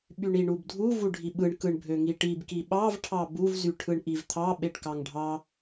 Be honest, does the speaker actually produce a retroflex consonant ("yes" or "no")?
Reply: yes